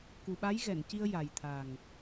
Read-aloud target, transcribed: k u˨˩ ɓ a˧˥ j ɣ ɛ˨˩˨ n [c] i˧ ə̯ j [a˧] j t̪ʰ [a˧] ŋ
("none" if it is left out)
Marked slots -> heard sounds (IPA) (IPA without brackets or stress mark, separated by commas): c, a˨˩, a˨˩